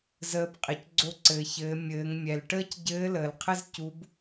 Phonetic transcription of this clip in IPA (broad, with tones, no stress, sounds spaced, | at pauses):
z əː˧ b qʼ ɘ˩ c ɡ͡ǀ o˧ ǀ ɘː˩ ç ɘː˩˧ mʲ ɘː˩˧ ŋ mʲ ɛ˩ l ʈ əː˥ c ɟ ɘː˧˥ l əː˩ l qʰ ɘ˥ z c u˧˥ b